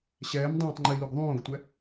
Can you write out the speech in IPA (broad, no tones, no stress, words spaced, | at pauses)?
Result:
ɕɛːm dˤõːtˤŋ͡ǃiluɡ ðˤõːɡtʷɛ